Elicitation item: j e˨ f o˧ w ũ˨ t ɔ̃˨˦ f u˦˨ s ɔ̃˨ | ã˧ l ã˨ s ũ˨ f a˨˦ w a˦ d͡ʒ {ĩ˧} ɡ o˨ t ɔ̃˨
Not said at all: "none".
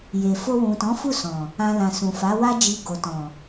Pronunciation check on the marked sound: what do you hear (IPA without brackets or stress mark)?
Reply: i˧